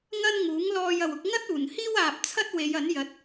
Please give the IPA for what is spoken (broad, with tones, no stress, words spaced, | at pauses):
ŋɐ˥nŋuː˨˥ŋlɔː˧j ɐ˨wʊ˨˥k̚ ŋɐ˥t̚ uː˨˩n hiː˥waː˨p̚t͡sʰɐ˥t̚ we˨˧jɐ˨˥n jɐ˨˥t̚